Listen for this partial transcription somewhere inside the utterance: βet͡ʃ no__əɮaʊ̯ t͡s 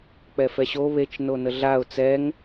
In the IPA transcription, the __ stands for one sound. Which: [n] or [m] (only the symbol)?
n